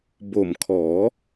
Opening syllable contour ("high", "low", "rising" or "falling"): low